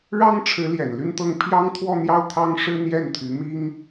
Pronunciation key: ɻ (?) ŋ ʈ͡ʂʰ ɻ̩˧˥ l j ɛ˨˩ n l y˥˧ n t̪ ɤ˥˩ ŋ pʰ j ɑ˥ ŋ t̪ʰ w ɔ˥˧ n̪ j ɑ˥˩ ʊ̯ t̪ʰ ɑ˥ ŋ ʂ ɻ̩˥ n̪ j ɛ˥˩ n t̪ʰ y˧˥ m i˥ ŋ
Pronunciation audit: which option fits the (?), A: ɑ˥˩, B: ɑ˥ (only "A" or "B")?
B